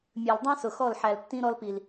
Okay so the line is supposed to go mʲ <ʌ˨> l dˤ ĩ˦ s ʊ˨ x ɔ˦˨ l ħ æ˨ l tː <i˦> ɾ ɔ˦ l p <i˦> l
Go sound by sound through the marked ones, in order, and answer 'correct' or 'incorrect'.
incorrect, incorrect, incorrect

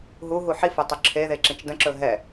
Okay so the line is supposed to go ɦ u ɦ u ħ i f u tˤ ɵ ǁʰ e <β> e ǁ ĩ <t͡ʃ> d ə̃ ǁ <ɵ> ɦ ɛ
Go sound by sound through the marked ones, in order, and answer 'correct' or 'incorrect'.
incorrect, correct, correct

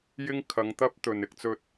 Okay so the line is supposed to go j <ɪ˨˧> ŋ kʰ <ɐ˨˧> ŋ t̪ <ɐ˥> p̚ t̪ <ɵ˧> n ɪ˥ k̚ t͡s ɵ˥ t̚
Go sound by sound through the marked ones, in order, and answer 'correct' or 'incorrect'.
incorrect, correct, correct, incorrect

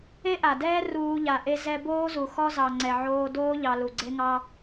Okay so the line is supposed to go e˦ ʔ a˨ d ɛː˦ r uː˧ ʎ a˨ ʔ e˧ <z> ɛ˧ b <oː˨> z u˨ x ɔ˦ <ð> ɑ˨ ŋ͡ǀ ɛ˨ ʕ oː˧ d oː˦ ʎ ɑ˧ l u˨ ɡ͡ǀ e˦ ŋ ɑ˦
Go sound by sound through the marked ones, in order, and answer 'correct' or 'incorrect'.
correct, incorrect, incorrect

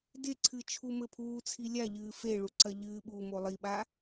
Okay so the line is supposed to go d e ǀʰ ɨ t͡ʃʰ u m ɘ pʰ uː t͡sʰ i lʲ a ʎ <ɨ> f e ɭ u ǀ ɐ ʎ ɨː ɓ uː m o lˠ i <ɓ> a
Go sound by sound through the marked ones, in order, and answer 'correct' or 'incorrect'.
incorrect, correct

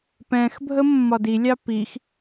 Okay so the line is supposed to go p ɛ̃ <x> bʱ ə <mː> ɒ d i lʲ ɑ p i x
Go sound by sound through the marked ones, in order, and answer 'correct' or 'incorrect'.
correct, correct

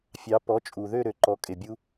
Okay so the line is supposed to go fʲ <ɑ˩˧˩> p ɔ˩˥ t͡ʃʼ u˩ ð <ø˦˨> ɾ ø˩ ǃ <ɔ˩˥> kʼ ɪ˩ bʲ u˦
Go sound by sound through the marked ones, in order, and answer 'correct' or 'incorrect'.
incorrect, correct, correct

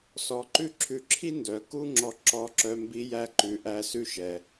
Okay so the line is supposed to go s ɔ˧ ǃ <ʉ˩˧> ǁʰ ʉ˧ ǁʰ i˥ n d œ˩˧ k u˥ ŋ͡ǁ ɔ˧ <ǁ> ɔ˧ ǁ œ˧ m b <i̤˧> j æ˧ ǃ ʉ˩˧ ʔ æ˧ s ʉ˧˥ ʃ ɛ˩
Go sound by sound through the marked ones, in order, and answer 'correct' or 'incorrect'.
incorrect, correct, incorrect

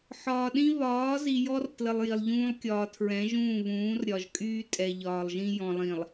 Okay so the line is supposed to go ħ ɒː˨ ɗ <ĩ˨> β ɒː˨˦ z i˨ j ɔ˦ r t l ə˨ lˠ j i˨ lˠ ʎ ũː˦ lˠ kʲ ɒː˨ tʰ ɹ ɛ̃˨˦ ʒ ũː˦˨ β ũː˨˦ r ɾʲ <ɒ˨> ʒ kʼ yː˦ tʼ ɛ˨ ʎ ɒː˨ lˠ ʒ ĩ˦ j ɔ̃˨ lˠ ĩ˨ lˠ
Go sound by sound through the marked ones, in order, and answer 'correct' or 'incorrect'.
incorrect, correct

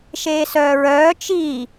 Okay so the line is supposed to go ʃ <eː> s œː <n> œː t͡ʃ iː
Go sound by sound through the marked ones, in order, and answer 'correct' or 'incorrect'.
correct, incorrect

